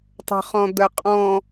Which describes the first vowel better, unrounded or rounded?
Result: unrounded